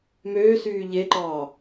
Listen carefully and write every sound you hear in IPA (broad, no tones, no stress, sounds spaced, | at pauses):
m øː s yː ʎ e ǃ ɑː